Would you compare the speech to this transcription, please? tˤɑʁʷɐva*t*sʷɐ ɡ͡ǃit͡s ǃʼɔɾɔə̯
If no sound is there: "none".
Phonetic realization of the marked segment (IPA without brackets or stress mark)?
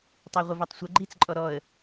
tˤ